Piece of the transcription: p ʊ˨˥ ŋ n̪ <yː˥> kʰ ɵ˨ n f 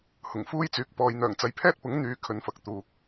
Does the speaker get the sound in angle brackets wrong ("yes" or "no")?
yes